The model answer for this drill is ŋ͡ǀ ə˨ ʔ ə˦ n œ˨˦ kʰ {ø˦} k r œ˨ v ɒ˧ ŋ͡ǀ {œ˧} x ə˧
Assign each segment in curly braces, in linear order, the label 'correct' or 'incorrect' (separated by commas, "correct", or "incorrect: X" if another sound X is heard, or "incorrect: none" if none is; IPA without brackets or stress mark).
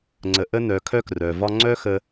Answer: incorrect: œ˦, incorrect: œ˦